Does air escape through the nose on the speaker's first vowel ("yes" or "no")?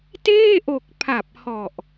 no